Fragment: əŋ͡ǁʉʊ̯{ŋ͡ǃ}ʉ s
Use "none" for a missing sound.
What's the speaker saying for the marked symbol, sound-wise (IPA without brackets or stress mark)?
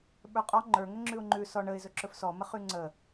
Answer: ŋ͡ǃ